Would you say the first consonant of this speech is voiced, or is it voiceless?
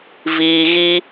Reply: voiced